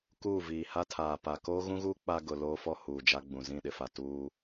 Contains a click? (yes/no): no